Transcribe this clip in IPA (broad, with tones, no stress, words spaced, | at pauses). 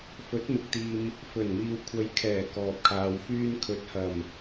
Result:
fɵ˨˥t̚mɪ˨k̚t̪iː˨m | fɵ˨˩nmiː˨w kʷʰɐ˨˧jkʰɛː˨˩ kɔː˨p̚kʰaː˨w fyː˧nkʰɵ˨˥t̚hɐ˨˩m